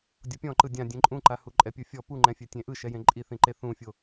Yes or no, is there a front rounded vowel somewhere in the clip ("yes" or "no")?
no